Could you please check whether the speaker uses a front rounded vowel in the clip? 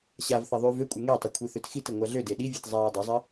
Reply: yes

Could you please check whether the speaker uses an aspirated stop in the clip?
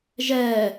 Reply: no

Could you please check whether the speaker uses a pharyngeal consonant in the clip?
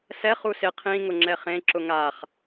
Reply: no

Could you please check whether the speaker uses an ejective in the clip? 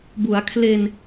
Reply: no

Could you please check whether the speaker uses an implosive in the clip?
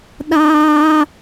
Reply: yes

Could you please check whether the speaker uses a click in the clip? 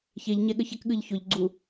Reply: yes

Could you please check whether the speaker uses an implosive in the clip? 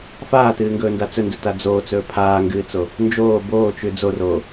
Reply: no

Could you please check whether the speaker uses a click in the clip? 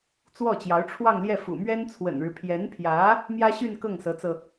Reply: no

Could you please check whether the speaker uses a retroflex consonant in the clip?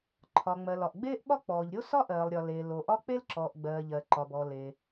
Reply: no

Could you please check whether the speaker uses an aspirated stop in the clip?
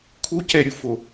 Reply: yes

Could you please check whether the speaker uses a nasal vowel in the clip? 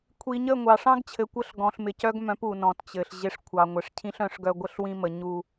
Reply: yes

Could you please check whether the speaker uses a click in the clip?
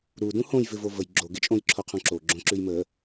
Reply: yes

